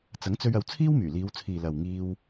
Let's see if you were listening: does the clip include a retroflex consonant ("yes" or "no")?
no